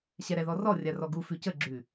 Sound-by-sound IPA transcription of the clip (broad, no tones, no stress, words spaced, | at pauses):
ɕɛɾɛðɔrɔ rʲarɔɡu fʉcə ɡ͡ǁʉ